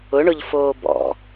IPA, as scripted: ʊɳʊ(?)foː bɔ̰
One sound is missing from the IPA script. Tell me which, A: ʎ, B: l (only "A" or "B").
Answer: A